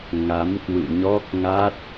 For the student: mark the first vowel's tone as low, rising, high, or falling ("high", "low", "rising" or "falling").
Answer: rising